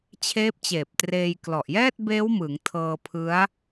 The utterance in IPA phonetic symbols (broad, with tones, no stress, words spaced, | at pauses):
t͡ɕʰeː˦˥p̚t͡ɕeː˨˩p̚treː˧j klɔ˨˩ʔjɛː˥˩t̚beː˦˥wmɯ˩˦ŋ tʰɤː˧pʰɯ˦˥a̯